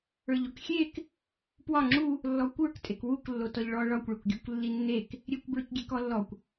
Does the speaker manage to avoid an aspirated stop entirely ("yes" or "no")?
yes